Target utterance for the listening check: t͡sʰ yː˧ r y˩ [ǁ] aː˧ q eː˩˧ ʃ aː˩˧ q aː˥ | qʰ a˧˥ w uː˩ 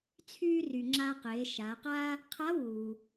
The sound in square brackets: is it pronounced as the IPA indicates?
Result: no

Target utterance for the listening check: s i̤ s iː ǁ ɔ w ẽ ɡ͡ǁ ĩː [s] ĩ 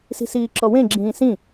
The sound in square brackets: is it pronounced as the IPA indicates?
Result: yes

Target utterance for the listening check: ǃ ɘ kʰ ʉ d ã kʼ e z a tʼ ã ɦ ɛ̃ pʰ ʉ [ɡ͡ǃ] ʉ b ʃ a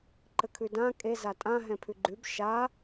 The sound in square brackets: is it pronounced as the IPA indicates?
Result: yes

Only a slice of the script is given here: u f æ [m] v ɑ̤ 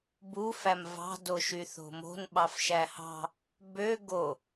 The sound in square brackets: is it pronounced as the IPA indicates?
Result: yes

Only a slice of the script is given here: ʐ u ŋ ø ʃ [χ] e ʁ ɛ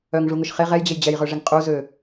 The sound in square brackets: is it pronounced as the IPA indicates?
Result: yes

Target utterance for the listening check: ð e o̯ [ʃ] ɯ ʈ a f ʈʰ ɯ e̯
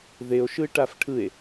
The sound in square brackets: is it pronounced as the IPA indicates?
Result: yes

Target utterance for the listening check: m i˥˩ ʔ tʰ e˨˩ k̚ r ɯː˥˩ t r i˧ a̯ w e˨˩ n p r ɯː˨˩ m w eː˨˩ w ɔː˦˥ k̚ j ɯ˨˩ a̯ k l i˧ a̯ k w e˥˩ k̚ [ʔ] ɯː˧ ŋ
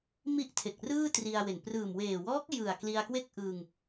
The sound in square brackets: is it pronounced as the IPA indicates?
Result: yes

